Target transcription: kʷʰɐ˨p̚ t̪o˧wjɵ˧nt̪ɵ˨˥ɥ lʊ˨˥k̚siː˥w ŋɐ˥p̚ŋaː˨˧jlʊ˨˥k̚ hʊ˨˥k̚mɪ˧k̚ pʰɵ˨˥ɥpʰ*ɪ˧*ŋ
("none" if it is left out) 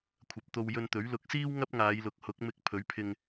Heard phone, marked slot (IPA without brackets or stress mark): ɪ˧